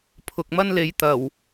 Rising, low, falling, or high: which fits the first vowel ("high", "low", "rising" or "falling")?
low